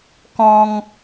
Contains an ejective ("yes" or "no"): no